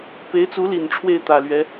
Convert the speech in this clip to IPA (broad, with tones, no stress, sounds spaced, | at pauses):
p e˧˥ ɪ̯ t͡s u˧˥ l i˨˩ n ʈ͡ʂʰ w e˥˩ ɪ̯ t̪ ä˨˩ l ɥ ɛ˧˥